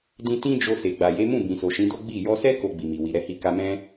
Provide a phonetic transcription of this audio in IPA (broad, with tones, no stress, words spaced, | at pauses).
dĩ˧ tĩ˦ d͡ʒo˧ se˨ɡ͡ba˨je˨˦mũ˦˨ bĩ˨so˨ʃĩ˨˦do˦ ɡ͡bi˦˨ jɔ˧sɛ˦ ko˧ɡ͡bi˨mi˨ wi˨ɾɛ˧hi˧ ka˧mɛ̃˦